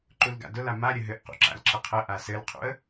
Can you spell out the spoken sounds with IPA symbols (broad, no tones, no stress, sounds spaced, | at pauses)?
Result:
ǃ u l ɡ a̰ d ʊ l a m a ɾʲ ə ɦ ɘ ʔ q ṵ ǁ a̰ l ǁ ə qʰ ə ʔ a s ɘ l qʰ ṵ ə̯